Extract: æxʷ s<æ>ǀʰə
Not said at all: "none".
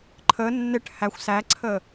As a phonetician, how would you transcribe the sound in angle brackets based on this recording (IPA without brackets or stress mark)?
æ